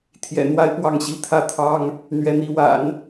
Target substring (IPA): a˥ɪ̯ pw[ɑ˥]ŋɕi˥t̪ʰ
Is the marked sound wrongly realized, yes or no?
yes